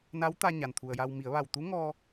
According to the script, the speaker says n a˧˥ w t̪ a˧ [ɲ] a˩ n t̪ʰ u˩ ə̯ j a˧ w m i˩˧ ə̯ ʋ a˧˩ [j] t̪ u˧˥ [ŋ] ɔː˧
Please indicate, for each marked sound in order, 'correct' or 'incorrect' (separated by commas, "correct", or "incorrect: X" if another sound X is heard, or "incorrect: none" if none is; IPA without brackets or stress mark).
correct, incorrect: w, correct